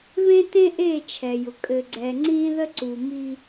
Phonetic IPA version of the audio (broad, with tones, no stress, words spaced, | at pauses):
βẽ˦tẽ˦ʔe˦˨ t͡ʃʰɛ˨jʊ˨ kʼɘ˨ɡ͡ǀɛ˨ ŋ͡ǀĩ˦ðə˦ ǀu˨ mi˦